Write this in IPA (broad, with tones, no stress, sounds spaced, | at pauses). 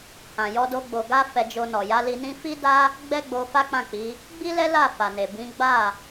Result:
h ã˨ j ɔ˧ d o˧ ɡ͡b o˨ ɡ a˧ f ɛ˧ d͡ʒ o˧ n ɔ˨ j a˨˦ l i˧ n ĩ˦ f i˦ d a˦ | ɡ͡b ɛ˦ ɡ͡b o˧ f a˦ k͡p ã˦˨ k͡p i˨˦ | ɡ͡b i˦ l ɛ˦ l a˦˨ f a˨ n e˨ b ĩ˨˦ ɡ͡b a˦˨